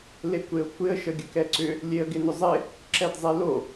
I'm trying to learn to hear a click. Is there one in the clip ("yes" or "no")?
yes